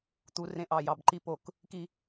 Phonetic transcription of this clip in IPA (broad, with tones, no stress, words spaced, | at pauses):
t̪u˨ rẽ˦ʔɑ˨ jɑ˨bǃi˦ po˨k | ki˦